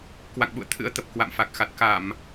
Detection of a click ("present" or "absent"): absent